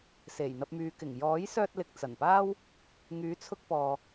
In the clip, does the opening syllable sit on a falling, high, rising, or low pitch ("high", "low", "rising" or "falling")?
low